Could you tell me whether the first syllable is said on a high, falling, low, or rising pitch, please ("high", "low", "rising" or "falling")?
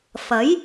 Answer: rising